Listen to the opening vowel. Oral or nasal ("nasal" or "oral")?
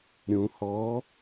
nasal